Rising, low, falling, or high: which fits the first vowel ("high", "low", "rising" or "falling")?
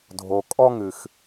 low